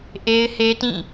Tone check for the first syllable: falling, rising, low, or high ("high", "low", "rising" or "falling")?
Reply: high